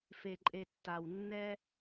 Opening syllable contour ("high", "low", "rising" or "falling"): low